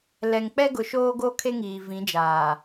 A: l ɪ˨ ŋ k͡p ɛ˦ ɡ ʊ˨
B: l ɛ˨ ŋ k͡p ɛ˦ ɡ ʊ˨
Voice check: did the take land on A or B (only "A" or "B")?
B